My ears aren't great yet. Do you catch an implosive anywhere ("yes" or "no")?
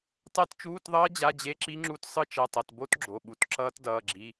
yes